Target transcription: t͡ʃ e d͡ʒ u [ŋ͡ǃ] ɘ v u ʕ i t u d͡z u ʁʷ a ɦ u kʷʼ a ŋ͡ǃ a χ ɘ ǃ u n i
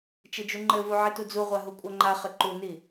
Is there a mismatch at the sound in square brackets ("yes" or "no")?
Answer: no